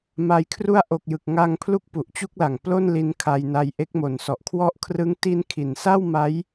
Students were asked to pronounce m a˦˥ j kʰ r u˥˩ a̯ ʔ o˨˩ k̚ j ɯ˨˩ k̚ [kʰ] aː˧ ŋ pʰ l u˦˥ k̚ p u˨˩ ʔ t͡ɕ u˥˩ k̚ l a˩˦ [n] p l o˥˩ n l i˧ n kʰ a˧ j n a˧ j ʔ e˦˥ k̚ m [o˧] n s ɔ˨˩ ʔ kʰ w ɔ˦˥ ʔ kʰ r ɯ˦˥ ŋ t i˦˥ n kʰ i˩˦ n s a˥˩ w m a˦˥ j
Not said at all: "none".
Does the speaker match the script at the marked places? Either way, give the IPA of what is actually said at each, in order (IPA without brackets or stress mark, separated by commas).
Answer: ŋ, ŋ, o˨˩